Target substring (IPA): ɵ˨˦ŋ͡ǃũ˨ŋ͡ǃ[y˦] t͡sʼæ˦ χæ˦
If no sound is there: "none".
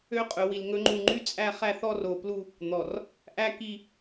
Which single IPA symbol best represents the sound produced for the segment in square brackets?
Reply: y˦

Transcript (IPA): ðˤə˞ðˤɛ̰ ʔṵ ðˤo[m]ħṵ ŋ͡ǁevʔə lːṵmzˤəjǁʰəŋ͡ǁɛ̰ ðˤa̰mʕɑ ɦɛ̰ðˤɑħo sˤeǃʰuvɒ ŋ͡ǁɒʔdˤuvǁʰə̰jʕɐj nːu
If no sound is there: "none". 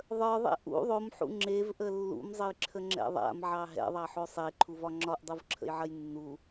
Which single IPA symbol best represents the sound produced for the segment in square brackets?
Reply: m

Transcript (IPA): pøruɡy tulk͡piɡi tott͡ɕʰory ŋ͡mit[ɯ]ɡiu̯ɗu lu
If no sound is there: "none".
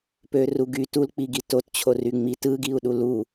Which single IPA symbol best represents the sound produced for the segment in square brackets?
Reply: ɯ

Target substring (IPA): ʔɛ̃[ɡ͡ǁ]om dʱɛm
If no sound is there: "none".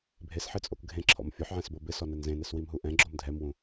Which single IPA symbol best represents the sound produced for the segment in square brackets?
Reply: ɡ͡ǁ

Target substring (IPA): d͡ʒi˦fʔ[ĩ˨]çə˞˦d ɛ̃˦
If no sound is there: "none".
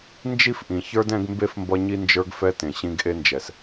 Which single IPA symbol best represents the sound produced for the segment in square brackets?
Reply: ĩ˩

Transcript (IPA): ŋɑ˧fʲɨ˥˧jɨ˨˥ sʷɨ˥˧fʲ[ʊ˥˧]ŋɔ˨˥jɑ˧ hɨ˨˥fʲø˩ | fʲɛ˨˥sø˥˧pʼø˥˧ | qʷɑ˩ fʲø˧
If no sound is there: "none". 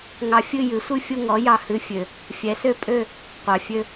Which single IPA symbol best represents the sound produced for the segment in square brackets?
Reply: ʊ˥˧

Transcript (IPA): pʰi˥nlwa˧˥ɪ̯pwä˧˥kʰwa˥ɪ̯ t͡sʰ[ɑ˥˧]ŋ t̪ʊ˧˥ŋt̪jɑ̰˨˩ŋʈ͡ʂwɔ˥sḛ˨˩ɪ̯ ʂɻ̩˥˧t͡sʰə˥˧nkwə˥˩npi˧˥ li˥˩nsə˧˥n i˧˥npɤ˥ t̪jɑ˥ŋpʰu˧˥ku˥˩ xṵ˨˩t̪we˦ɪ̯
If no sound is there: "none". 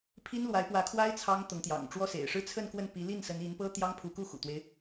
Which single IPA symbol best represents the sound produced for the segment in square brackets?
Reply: ɑ˥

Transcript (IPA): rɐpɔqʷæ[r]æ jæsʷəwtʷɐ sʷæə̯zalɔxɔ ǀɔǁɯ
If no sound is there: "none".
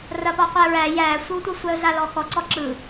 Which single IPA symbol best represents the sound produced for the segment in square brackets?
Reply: ɹ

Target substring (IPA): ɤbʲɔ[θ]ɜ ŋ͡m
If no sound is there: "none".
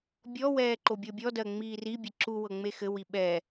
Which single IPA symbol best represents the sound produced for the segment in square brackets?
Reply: d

